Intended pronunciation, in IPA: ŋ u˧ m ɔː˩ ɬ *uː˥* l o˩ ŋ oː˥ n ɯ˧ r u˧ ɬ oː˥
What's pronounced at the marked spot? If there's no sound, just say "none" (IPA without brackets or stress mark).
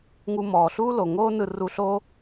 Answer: uː˥